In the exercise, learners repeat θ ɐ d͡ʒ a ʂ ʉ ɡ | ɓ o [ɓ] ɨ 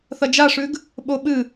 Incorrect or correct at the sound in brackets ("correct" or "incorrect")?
correct